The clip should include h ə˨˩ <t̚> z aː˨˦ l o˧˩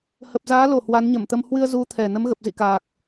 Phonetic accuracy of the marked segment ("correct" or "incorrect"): incorrect